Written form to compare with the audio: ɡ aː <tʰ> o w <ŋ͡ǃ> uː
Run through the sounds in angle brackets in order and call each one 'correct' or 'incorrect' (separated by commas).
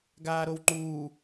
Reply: incorrect, correct